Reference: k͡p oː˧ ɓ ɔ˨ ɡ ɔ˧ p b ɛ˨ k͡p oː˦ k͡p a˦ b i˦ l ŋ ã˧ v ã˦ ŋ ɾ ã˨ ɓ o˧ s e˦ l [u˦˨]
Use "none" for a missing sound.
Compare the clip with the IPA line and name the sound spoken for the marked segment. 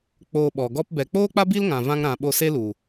u˨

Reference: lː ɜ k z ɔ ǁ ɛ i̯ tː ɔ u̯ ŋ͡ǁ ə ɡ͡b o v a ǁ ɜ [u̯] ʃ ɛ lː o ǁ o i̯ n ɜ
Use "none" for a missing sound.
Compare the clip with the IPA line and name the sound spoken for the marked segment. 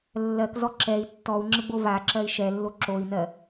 i̯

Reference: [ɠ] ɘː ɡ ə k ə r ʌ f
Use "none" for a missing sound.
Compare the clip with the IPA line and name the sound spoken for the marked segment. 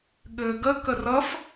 ɠ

